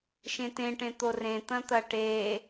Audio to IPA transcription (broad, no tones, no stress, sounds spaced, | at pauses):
ʃ ẽ t ẽ ʈ ẽ t̪ o r ẽ t̪ ɐ̃ t̪ ɐ ʈ e